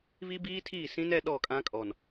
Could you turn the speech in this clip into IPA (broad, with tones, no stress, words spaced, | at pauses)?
βi˦biː˦tʰiː˦˨sĩ˦n ɛ˦ɗɔ˦˨kʼã˦ kʼɔ˨n